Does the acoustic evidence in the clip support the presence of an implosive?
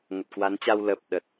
yes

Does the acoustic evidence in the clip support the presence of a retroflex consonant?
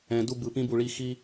yes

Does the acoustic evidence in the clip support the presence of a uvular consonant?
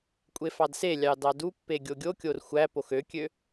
no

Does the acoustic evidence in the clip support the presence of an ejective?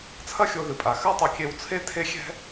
yes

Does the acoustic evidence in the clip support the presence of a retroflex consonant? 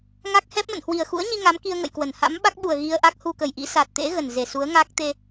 no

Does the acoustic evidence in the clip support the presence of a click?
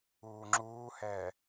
yes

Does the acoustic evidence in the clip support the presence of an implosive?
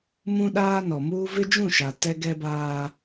yes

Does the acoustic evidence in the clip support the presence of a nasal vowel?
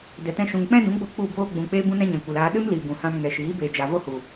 yes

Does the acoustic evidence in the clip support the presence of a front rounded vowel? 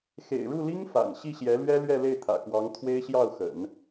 no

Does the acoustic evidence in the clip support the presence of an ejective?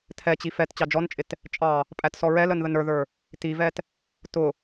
yes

